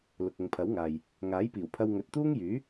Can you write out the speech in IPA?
l ʊ˨ k̚ ʊ˨ ŋ pʰ ɐ˨˥ w ŋ aː˨ j | ŋ aː˨˥ j p iː˨˩ w pʰ ɐ˧ w ŋ ɵ˨ t̚ t̪ uː˥ ŋ j yː˨˥

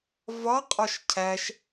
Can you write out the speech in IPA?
v ɒ qʼ ɒ ʃ cʰ æ ʃ

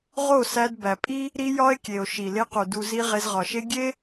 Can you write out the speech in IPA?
ʁ o˦˨ s æ˧ d b æ˨ pʼ i˦ | ɾ i˦ j ɒ˦ e̯ kʲ e˨ o̯ ʃ i˨ l e˧ q u˨ d u˧ z i˦ ʁ e˧ z ʁ ɒ˨ ʃ e˦ ɡʲ e˦

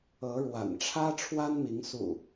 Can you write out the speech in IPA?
ɤ˨˦ ɻ w a̰˨˩ n ʈ͡ʂʰ ä˦ ʈ͡ʂʰ w a˦ n m i˨˦ ŋ s ṵ˨˩

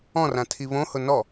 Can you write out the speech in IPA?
ɔ̃ r ã tʰ i β õ h ʊ n ɔ

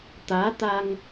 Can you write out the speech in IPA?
t̪ aː˨˦ t̪ a˧ ŋ

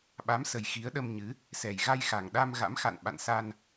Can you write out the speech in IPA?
ɓ a˨˦ m s ə˨˩ j x i˨˦ ə̯ ɗ ə˧ m ɲ ɨ˨˦ | s ɛ˨˩ j ɣ a˧ j x a˨˩ ŋ ɗ a˧ m ɣ a̰˧˥ m x a̰˧˨ n ɓ a̰˧˨ n s a˧ n

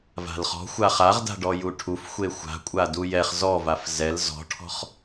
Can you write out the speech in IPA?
v a̤ l χ ɔ̤ xʷ a χ a ʁ d a̤ ɖ ɔ j u ʈʰ u f xʷ e xʷ a̤ kʷʼ a d u j ɛ χ z ɔ v a f z ɛ l z ɔ̤ ʈʰ ɔ̤ χ

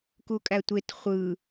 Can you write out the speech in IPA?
k u kʼ æ tʷ e t χʷ ɯ

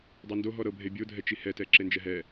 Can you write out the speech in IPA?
dˤ ɤ n d o ɦ ɔ ɾ ɤ bʱ e bʲ o dʱ ɛ t͡ʃ i h ɛ t ɛ ǁ e n d͡ʒ ɛ ɦ ɛ

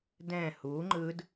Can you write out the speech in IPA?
d ɛ̃ h u ŋ͡ǃ ɯ d

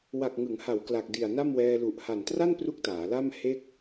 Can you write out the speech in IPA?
w a˨˩ k̚ ŋ ɯ˩˦ ŋ h a˩˦ w k l a˨˩ k̚ d i˨˩ a̯ n a˥˩ m w ɛː˧ l u˨˩ ʔ h a˨˩ n t r a˥˩ n p r u˥˩ k̚ t aː˩˦ l a˥˩ m h e˥˩ k̚

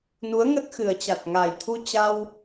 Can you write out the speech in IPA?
n u˨˦ ə̯ ŋ ə˦˥ t̚ x ɨ˨˩ ə̯ t͡ɕ a˨˩ t̚ ŋ a˨˩ j t̪ʰ u˧ t͡ɕ a˧ w

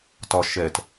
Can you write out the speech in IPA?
t ɒ ʃ ɛ t

